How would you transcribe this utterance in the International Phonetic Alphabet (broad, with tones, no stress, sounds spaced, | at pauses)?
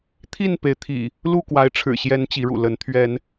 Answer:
t̪ʰ i˥˨ n p e˨˦ ɪ̯ t̪ʰ ḭ˨˩ | l u˥˨ k w a˨˦ ɪ̯ ʈ͡ʂʰ ɻ̩˨˩ ɕ j ɛ˨˦ n t͡ɕ i˨˦ ɻ ṵ˨˩ l ə˨˦ n t̪ʰ ɥ ɛ˨˦ n